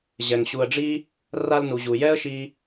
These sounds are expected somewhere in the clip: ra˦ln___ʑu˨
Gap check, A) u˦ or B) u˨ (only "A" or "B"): B